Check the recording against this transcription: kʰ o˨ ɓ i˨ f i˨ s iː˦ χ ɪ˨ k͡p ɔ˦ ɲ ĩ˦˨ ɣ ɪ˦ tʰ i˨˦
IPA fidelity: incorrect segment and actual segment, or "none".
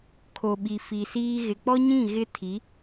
χ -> ɣ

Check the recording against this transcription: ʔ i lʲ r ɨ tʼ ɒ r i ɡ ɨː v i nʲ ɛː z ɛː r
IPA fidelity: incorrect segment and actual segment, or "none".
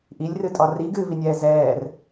none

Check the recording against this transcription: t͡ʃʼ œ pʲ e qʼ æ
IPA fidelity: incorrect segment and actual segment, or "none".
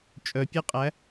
none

